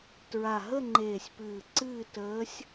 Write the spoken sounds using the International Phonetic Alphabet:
t ɹ a˨˩ ɦ ə˥˧ ŋ͡ǃ eː˨˩ sʲ p ɨː˨˩ ǀ ɨː˥˧ t əː˧˥ sʲ

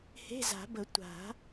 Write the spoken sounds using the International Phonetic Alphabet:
h e̤˧˥˧ z a̤˨˩˦ b ə˨˩˦ tʷ a̤˨˩˦

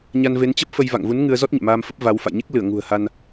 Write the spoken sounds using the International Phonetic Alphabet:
ɲ a˧ n v e˨˦ n t͡ɕ ə˦˥ p̚ f ə˧ j v a̰˧˨ ŋ v u˨˦ n ŋ ɨ˧ ə̯ z ɔ˦˥ t̚ ɲ ɛ̰˧˨ m aː˧ m f ə˦˥ p̚ v a˨˦ w f a̰˧˨ j ɲ e˦˥ k̚ l ɨ˧˩ ə̯ ŋ ṳ˨˩ ə̯ h a˧ n

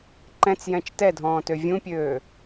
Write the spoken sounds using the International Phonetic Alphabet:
ǃ ɛ̃ t͡s j ɛ̃ t͡ʃ t ɛ dʱ ɔ̃ː t ø vʲ ũ pʲ øː

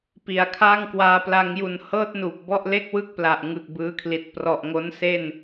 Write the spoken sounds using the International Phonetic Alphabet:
p i˨˩ a̯ kʰ a˥˩ ŋ k w aː˧ p l a˧ ŋ j u˨˩ n h ɤː˥˩ t̚ n uː˨˩ p̚ b ɔ˥˩ ʔ l e˥˩ k̚ w ɯ˥˩ k̚ p l a˨˩ ʔ ŋ ɯ˨˩ k̚ b ɯː˦˥ kʰ l i˨˩ t̚ p r ɔ˨˩ ʔ ŋ o˦˥ n s e˥˩ n

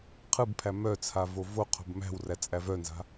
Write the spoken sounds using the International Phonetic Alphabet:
qʰ ɯ b pʰ æ m œ t͡sʰ a v o v o qʰ o̤ b m æ̤ w r æ t͡sʼ æ v œ n z a̤

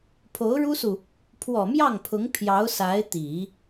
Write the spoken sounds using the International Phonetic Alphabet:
pʰ o˧˥ ʊ̯ ɻ u˥ s u˨ | pʰ w ɔ˨˩ m j ɑ˥˩ ŋ pʰ ʊ˧˥ ŋ pʰ j ɑ˧˥ ʊ̯ s a˧˥ ɪ̯ t̪ i˨˩˦

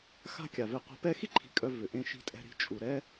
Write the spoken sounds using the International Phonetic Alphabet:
x a̤˦ kʲ a˩ v e˨ qʷ ɛ̤˨ p ɛ˥ x i˥ ǃʰ i̤˨ kʼ œ˨ v ʏ˩ ʔ ẽ˨ ʃ i̤˨ tʼ ɛ̤˨ ɾ i̤˨ t͡ʃʼ u˩ ɾ ɛ˦

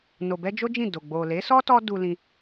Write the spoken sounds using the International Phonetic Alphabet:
n o˨ b ɛ˧ d͡ʒ o˦ d͡ʒ ĩ˦˨ d o˨ ɡ͡b o˨ l e˨˦ s ɔ˦ t ɔ˦ d u˧ l ĩ˧

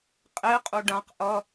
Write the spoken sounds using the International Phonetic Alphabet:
qʼ e qʼ u ɖ ã q ʔ ʌ

